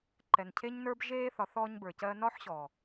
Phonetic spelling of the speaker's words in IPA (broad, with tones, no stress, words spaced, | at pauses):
ǃɛ˨ncʰe˧ɲnə˞˧b ʒeː˧ θɒ˨˦θɔː˧ɲbə˞˨cɜː˧ nɒ˦ħɕɔː˨